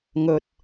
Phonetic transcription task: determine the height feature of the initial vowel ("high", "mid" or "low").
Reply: mid